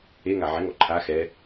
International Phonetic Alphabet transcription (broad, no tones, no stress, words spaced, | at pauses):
eŋa ʕɛŋ ɔǃʰa xɛ